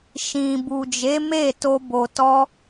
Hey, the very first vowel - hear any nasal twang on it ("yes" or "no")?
yes